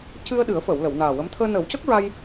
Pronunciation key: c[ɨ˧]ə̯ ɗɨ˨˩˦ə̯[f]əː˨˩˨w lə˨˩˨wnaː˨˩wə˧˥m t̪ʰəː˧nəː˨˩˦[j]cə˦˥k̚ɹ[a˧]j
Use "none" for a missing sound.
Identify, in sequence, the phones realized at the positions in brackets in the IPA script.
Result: ɨ˧, f, w, a˧

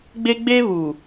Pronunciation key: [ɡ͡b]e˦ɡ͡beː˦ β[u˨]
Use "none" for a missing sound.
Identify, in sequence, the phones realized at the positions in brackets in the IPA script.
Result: ɡ͡b, uː˨

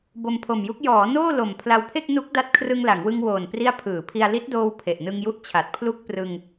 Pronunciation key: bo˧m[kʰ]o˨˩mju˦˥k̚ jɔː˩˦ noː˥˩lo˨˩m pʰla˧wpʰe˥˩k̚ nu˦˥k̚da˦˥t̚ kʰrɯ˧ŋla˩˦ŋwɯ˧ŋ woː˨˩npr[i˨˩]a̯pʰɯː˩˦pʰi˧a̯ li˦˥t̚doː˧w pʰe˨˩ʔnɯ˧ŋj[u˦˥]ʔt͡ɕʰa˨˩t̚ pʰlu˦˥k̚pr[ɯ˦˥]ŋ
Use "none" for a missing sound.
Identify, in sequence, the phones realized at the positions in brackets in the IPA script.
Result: pʰ, i˦˥, u˦˥, ɯ˧

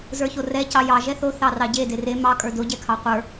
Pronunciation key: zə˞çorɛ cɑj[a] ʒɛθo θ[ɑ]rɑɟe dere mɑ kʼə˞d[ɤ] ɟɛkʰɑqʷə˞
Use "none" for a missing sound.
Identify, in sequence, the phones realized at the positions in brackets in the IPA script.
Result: ɑ, ɑ, o

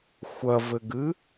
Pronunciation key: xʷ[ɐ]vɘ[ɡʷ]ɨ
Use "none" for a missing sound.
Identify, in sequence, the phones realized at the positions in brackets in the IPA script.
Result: ɐ, ɡ

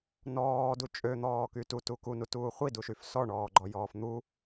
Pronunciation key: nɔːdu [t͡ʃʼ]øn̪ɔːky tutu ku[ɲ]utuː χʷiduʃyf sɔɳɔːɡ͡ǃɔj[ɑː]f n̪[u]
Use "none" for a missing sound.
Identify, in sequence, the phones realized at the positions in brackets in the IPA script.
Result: t͡ʃʼ, n, ɔː, u

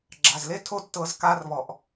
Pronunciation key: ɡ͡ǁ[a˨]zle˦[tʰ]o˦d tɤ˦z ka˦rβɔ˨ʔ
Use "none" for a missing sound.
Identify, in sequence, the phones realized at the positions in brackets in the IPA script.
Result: a˨, tʰ

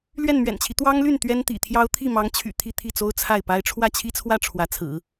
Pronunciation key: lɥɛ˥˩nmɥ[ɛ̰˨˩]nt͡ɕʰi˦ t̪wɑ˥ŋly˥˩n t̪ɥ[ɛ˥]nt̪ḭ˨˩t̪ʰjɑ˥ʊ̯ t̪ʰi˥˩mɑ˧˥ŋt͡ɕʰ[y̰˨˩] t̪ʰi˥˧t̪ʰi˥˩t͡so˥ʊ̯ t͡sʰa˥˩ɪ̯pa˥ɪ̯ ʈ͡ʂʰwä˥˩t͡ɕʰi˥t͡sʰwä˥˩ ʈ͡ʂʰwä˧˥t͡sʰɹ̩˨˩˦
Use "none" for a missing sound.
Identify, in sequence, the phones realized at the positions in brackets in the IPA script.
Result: ɛ̰˨˩, ɛ˥, y̰˨˩

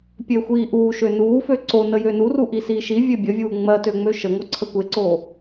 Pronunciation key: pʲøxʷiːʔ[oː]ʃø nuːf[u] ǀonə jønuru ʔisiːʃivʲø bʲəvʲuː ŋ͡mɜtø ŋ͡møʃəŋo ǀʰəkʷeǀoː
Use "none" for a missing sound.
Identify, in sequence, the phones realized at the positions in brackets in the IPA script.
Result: uː, ø

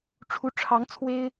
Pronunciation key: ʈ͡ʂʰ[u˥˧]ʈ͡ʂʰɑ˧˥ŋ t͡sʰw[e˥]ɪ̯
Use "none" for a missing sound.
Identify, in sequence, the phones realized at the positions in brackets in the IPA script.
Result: u˧˥, e˥

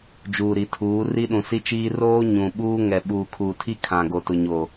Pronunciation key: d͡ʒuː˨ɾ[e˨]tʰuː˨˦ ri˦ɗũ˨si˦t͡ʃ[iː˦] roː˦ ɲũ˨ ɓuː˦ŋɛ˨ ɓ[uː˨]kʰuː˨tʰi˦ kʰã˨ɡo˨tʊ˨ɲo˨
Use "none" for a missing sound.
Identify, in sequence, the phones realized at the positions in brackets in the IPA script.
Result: i˨, iː˦, uː˨

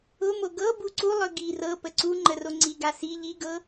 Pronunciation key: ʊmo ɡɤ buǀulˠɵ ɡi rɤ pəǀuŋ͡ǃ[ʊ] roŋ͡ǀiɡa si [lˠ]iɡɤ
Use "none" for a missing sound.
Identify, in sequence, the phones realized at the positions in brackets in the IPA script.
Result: ə, ʎ

